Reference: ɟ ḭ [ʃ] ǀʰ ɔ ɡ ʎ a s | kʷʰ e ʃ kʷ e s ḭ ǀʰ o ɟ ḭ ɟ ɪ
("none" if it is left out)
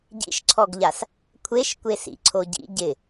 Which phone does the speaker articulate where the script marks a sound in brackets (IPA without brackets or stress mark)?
ʃ